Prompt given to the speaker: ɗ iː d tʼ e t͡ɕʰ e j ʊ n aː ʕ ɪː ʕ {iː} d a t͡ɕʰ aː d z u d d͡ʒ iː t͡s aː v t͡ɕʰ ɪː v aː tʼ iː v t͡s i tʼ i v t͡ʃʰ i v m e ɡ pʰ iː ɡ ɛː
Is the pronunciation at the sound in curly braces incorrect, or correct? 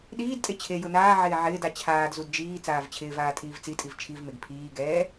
incorrect